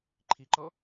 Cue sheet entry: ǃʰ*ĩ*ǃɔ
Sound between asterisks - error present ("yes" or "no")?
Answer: yes